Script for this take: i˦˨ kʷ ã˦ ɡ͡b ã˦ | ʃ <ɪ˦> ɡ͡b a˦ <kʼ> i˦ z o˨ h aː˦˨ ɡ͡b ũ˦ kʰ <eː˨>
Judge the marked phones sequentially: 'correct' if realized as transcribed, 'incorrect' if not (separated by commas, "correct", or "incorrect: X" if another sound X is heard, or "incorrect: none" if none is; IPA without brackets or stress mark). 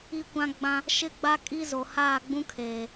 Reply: correct, correct, correct